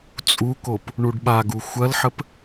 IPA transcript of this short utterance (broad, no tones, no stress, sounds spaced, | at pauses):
t͡sʼ u k o p | ɳ u ɖ ɓ a ɡ u xʷ ɐ l ħ ə p